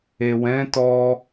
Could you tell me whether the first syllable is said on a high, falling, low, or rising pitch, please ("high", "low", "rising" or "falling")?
low